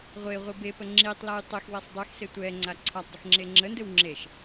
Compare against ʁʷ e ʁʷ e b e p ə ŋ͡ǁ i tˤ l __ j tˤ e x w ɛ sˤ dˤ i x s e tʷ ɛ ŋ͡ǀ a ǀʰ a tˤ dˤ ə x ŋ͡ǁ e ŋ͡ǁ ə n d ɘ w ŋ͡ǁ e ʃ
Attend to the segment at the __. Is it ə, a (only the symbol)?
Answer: a